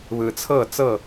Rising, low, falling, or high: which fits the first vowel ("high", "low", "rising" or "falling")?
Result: low